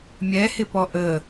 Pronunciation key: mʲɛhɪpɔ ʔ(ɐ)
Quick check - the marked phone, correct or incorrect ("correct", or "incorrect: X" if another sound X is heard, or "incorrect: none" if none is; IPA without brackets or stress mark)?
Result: incorrect: ə